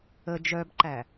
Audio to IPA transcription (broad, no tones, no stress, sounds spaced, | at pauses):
ə d͡ʒ œ b ǃ æ